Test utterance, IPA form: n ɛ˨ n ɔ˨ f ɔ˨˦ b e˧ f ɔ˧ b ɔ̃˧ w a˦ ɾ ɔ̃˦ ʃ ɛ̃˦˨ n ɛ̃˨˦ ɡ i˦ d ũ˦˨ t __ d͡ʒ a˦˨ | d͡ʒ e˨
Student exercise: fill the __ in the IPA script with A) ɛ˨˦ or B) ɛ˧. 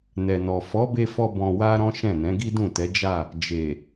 A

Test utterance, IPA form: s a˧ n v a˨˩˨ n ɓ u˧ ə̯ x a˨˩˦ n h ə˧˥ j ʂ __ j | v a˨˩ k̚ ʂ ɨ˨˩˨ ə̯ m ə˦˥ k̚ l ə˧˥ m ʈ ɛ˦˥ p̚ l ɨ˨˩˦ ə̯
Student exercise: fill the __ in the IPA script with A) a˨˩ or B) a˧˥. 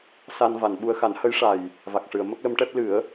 A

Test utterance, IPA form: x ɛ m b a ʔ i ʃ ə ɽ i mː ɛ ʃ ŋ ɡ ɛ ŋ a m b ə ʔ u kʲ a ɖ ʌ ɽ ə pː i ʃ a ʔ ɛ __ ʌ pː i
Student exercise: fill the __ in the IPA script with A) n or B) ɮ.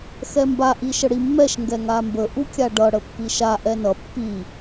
A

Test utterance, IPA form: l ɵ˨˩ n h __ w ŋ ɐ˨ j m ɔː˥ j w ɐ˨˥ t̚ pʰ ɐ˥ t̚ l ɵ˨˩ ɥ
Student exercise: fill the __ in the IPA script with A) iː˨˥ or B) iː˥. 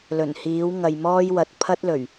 A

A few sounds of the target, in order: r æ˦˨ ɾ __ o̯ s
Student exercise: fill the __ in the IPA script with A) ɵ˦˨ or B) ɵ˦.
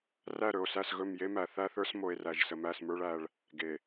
A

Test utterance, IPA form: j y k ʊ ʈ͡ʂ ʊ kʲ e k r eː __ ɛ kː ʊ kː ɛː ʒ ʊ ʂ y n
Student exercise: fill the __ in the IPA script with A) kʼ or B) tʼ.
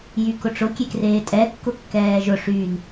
B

